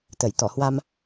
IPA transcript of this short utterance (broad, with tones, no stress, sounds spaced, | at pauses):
t̪ ə˧˩ j t̪ ɔ˧˩ h w a˧ m